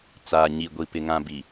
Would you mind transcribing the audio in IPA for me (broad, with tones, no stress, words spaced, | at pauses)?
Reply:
t͡saː˨ɲi˨ɡʷi˨pɪ˨ ŋã˨bi˨